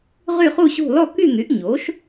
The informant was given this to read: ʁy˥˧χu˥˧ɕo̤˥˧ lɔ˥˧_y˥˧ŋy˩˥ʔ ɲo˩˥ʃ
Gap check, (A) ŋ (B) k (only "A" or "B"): B